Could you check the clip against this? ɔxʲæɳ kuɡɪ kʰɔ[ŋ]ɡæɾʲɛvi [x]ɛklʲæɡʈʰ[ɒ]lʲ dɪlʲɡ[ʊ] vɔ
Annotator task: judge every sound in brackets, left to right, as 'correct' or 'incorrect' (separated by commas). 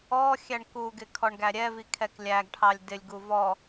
incorrect, incorrect, incorrect, incorrect